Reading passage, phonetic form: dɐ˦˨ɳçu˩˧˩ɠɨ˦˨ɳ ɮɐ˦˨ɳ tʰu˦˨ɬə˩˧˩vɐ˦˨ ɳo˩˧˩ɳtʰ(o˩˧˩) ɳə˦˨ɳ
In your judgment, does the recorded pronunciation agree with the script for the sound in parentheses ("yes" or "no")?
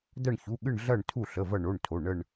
yes